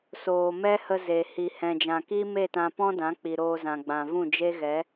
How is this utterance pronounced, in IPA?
s oː˨ m ɛ˦ h ə˧ z e˨ h i˨ h ɛ̃˨ d͡ʒ ã˨ k i˦ m e˦˨ t ã˧ p ɔ̃˦ d ã˨˦ k͡p i˨ ɾ oː˧ z ã˨ ɡ͡b ã˨ v ũ˦˨ d͡ʒ e˦ ɣ ɛ˨˦

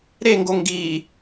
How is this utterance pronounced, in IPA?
ɾ e ŋ ɡ o ŋ ɡ i

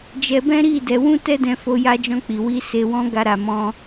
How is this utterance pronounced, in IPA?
d͡ʒ ɛ˧ b ɛ̃˦ ɾ i˦˨ d ɛ˨˦ w ũ˦ t ɛ˦ d ɛ̃˧ f o˧ j a˧ d͡ʒ ɔ̃˧ k͡p i˨ w i˧ s e˧ w ɔ̃˦ ɡ a˧ ɾ a˧ m ɔ̃˦

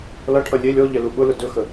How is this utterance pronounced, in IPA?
l ʌ ʈʰ ʌ lʲ e lʲ ɔ ʎ ɛ l u ɓ ʊ l ʊ d ɵ x ə

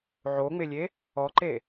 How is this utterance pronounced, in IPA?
ʕ o ŋ͡m ɪ lʲ e | ɔ ǃ e

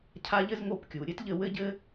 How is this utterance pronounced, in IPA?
cʰ a˦ ʎ ɘ˦ z ŋ o˦˨ p kʲ u˨ ɾʲ ɘ˦ t ʎ ɘ˦˨ w ɘ˦ ɟ ɘ˦

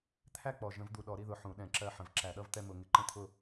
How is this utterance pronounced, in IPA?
t̪ʰ æ˥˧ k͡p ɔ˨˩ ʒ ə̃˧˩˧ v d̪ u˨˩ ɗ ɔ˧˩˧ ɾ i˥˧ ð ʊ˨˩ ħ ũ˧˩˧ ɗ ɛ̃˧˩˧ ǁ ɜ˥˧ ħ ə̃˧˩˧ v ǁ æ˧˩˧ ɗ ʌ˥˧ v t̪ ɛ˥˧ m ʊ˧˩˧ ŋ ɪ˨˩ ǃ ə̃˥˧ t̪ʰ ʊ˥˧

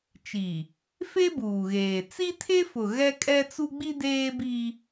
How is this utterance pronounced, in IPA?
t͡ʃ i˨ | f e˦ b uː˨ ɣ eː˨ t͡s i˦ tʰ e˦ f ʊ˨ ɣ ɛ˦ kʼ ɛ˦ t͡s u˦ ɡ͡b i˦ d eː˦ b i˦

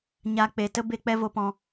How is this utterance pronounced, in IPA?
ɲ a˨ k͡p e˨ t ə˦ b e˧ k͡p ɛ˧ v o˨ p ɔ̃˨

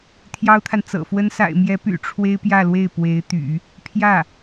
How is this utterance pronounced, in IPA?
t̪ʰ j ɑ˥ ʊ̯ t̪ʰ a˨ n t͡s ɤ̰˨˩ f w ə˥ n s a̰˨˩ ɪ̯ m j ɛ˧˥ p y̰˨˩ ʈ͡ʂʰ w e˥ ɪ̯ p j ä˥˧ l w e˥˩ ɪ̯ p w e˧˥ ɪ̯ t̪ y̰˨˩˦ | pʰ j ä˥˩

